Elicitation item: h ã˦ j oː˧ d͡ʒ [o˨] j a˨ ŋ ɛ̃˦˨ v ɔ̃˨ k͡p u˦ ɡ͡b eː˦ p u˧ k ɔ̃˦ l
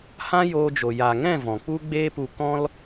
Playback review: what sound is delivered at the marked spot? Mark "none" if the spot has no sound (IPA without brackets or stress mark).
o˨